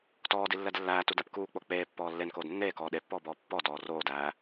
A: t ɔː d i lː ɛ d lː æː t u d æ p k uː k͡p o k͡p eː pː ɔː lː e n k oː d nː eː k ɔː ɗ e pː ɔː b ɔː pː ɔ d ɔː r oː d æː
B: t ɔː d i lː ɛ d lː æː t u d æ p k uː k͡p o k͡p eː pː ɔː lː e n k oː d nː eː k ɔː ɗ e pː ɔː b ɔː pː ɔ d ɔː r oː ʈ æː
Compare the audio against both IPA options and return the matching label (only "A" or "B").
A